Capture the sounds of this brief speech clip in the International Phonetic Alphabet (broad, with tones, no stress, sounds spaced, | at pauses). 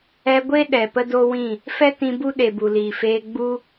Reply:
ɛ˧ ɡʷ e˦ ɗ ɛ˨ p ə˦ d o˦ w ĩ˦˨ | f ɛ˦ t ĩ˧ b u˦ ɗ e˨ b u˨ l iː˨ f eː˧ ɡ͡b u˦